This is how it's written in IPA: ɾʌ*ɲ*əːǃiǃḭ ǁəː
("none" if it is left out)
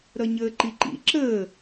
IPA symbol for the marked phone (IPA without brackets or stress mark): ɲ